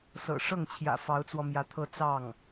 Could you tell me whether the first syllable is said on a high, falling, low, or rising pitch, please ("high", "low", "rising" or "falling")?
low